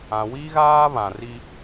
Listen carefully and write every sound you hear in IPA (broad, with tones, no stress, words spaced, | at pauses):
ã˨ wi˦ɣaː˦ βã˨ri˦